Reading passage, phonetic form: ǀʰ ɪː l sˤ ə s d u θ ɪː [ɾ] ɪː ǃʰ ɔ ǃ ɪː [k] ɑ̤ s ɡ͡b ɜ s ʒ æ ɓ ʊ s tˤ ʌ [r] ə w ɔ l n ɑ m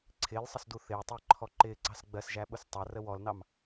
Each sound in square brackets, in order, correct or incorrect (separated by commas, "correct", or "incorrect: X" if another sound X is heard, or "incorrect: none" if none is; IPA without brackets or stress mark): incorrect: tˤ, incorrect: ǀ, correct